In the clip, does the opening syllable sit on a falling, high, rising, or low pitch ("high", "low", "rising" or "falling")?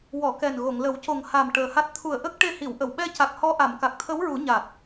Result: low